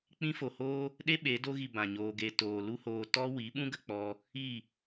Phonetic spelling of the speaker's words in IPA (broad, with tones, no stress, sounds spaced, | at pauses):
k͡p ĩ˧ f o˨ h oː˦ | ɗ e˦ ɓ e˨˦ d o˧ ɣ i˨ b ã˨ ɲ oː˧ ɡ e˧ t oː˨ l u˦ h oː˧ t ɔ˦ w i˨˦ ɓ ũ˦ ɡ ə˧ k͡p ɔ˧ | i˦˨